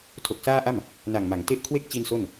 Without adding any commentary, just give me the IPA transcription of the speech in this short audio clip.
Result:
tʰ o˨˩ k̚ s aː˥˩ ʔ a˥˩ m | n a˨˩ ŋ m a˩˦ ŋ t e˦˥ ʔ kʰ w e˥˩ k̚ t͡ɕ i˧ n s o˥˩ n

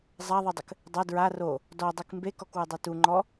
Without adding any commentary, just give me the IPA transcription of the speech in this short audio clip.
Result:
zˤ a ðˤ i dˤ ɘ k | dˤ ɐ d ɹ a r o | d ɔ dˤ i k m b e k ɔ k w ɨ dˤ e t u ŋ͡ǃ ɔ

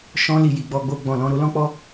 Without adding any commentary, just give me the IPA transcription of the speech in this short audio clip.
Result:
ʃ ɔ̃˧ l i˨ j i˨ ɡ͡b ɔ˧ ɡ͡b o˧ ɡ͡b ɔ̃˨ l ɔ̃˧ ɾ o˦ l ɔ̃˦ k͡p ɔ˦

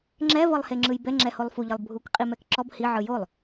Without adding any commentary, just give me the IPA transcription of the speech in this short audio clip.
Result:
ŋ͡ǁ ɛ v ɤ lˠ h e ŋ͡ǁ ɯ j b ɛ ŋ͡ǁ ɛ h o lˠ f u ʎ ɤ lˠ bʱ u k qʼ i m ɛ k ǁ ɔ b h i ʕ ɯ j o lˠ

